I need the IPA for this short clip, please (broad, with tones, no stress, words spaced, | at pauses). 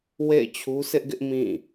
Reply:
wḛ˦˨ɪ̯t͡ɕʰu˦sʰɪ˦ʔɡɪ˦ʔ mĩ˦˨